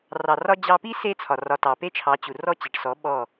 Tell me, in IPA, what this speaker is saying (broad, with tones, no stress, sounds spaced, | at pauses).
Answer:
r ɑ˨ r ɒ˧ d͡ʑ ɑ˧ p i˦ s e˦ t͡sʰ ɒ˨ r ɒ˨ t ɑ˨ p e˦ t͡ʃʰ ɑ˨˦ t͡ɕ u˨ r ɔ˦˨ t͡ɕ e˨ ʈ s ɔ˨˦ ɓ ɔ˦˨